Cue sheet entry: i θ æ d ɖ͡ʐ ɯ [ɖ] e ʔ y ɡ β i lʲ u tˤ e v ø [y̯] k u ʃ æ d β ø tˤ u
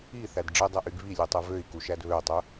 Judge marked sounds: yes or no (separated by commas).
no, no